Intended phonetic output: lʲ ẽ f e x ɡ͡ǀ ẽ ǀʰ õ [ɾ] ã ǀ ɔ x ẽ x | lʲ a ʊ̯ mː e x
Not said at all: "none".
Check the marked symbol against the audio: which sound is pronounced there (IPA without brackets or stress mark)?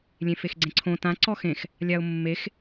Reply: t